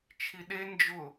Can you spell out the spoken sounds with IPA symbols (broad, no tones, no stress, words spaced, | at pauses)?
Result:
t͡ʃʰiɗe nd͡ʒʊ